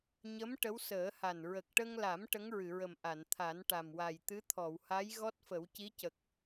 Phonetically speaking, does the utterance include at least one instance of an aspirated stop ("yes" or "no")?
yes